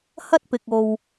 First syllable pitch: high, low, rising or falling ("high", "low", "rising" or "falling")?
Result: high